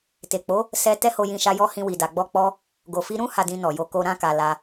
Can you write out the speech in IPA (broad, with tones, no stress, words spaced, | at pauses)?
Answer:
te˨k͡po˨˦ | sɛ˦ tɛ˦ho˧jĩ˧ʃa˧ jɔ˦hĩ˧ wi˨da˨ɡ͡bɔ˧k͡pɔ˧ | ɡo˨fi˧ɾũ˦ ha˧dĩ˧nɔ˨jo˧ ko˧ ɾã˧ka˨ la˧